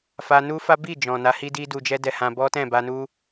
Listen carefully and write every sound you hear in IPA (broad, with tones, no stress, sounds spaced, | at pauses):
f a˧ n u˦ f a˦ b i˦˨ d͡ʒ ɔ̃˨ n a˨˦ h i˦ d i˦ d u˧ d͡ʒ ɛ˦ d ɛ˧ h ã˧ b ɔ˦ t ɛ̃˦˨ b a˧ n u˦